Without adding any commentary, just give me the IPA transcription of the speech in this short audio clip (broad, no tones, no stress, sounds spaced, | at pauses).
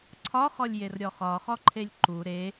ǀʰ ɒ χ ɔ lʲ j e r ɾʲ ɔ χ ɒ χ ɔ ǃʰ e lʲ ǃ u ɾ e